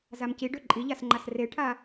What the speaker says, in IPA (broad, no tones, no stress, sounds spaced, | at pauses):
z a m c i ɖ ø ǃʼ i ʎ a s ŋ͡ǃ a s r e ʈʰ a